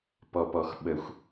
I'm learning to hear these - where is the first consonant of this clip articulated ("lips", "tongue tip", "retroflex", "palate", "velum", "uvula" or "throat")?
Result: lips